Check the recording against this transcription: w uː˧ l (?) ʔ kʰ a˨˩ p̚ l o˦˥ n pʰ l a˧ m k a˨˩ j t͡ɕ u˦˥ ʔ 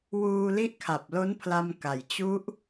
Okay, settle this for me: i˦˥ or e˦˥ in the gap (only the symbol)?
i˦˥